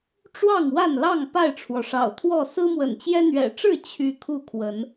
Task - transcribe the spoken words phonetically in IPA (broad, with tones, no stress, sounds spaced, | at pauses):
ʈ͡ʂ w ɑ˥˨ ŋ w a˥˨ n l ɑ˥˨ ŋ p a˥˨ ɪ̯ ʈ͡ʂʰ w ɔ˩ ʂ ɑ̰˨˩ ʊ̯ t̪ʰ w ɔ˥˨ s ɹ̩˦ m w ə̰˨˩ n t͡ɕ j ɛ˦ n̪ ɥ ɛ̰˨˩ ʈ͡ʂ ɻ̩˥˨ t͡ɕʰ y˥˨ kʰ u˥˨ kʰ w ə˨˦ n